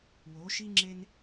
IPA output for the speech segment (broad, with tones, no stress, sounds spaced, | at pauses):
w o˨˦ ʃ i˦ ŋ͡ǁ e˦ n